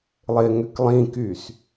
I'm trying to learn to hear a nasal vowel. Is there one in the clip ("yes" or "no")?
yes